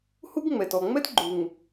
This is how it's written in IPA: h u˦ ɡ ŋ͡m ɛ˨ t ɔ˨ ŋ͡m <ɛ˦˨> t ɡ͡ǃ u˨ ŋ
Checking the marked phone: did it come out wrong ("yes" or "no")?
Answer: yes